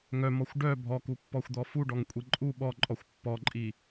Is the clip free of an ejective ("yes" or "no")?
no